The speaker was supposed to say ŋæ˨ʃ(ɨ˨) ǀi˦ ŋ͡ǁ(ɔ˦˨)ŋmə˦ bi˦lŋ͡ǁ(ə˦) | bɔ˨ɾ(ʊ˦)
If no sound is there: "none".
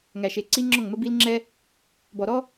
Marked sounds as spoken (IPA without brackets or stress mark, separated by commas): e˨, ɔ˦˨, ɛ˦, ɔ˦